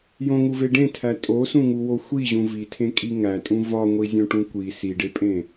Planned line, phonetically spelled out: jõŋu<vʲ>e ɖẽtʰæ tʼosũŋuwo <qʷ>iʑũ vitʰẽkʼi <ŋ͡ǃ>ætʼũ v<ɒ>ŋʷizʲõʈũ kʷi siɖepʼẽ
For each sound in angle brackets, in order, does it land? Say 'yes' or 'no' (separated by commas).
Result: no, no, no, yes